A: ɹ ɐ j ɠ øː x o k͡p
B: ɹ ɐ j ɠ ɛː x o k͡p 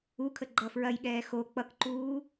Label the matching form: B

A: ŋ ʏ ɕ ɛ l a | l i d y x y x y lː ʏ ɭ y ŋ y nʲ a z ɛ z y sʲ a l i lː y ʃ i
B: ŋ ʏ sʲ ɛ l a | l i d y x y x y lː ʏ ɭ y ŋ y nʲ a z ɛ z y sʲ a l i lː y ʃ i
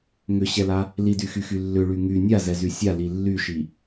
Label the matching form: A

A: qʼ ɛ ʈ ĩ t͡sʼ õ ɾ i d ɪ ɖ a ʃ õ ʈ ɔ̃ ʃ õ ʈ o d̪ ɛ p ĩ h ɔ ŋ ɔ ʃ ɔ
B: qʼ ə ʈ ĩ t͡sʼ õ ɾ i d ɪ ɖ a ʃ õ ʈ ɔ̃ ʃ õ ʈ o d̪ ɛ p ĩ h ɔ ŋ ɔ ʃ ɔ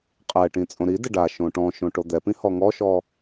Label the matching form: A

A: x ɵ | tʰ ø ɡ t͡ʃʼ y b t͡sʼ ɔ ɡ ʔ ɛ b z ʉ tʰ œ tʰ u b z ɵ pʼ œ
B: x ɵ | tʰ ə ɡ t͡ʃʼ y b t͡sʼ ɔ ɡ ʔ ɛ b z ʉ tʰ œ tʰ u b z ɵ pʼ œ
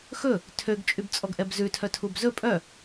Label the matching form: A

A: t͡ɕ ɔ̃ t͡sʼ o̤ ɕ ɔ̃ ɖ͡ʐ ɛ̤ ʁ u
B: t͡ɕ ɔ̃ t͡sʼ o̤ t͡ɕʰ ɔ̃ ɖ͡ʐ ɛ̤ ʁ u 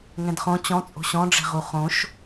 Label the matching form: A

